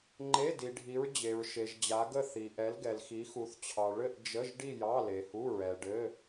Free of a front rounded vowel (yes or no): yes